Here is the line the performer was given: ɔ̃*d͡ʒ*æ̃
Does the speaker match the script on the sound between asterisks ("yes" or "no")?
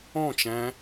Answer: no